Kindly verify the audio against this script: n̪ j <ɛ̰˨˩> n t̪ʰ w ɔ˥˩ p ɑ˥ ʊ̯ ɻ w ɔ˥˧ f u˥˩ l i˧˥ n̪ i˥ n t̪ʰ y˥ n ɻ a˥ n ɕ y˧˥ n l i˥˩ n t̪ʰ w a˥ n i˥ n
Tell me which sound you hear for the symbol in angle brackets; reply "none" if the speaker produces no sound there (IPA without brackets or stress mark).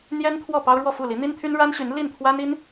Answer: ɛ˥